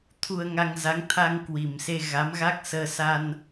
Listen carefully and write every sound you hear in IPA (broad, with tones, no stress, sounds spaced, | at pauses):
t̪ʰ u˧ ə̯ ŋ a˧ ŋ z a˨˦ ŋ t̪ʰ a˧ ŋ k w i˨˩ m s e˧ ɣ a˨˦ m ɣ a˦˥ k̚ s əː˧ s a˧ n